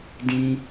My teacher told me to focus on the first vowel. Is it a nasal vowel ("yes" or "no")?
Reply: yes